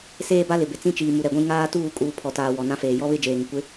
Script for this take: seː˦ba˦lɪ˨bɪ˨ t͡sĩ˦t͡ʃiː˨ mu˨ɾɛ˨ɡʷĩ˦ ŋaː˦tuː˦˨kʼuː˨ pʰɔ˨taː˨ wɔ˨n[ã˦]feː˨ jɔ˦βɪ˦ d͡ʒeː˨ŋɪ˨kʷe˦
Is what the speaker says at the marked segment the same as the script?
yes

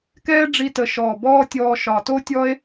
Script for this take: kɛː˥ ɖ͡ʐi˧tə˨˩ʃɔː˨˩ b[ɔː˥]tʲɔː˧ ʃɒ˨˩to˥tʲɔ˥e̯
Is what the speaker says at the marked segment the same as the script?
yes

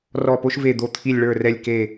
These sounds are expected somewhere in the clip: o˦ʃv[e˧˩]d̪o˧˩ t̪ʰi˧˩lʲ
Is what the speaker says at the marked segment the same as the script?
yes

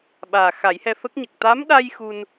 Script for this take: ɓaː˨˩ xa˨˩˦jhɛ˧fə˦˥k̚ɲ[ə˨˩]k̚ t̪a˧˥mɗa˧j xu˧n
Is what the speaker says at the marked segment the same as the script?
yes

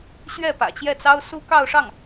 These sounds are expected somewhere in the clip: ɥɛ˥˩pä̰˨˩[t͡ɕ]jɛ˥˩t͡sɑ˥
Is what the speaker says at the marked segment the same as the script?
yes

